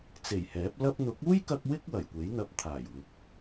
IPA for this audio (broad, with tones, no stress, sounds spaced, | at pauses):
t͡s e˨˩ j h ɛː˨˥ p̚ l ɐ˧ p̚ n̪ ʊ˨˥ k̚ uː˥ j k ɐ˧ k̚ w ɪ˥ k̚ w ɐ˨˩ j kʷ e˨˥ j n̪ ɐ˧ p̚ t̪ʰ aː˨˩ j w ɪ˨˥ k̚